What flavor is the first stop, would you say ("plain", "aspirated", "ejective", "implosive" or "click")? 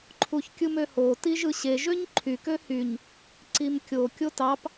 click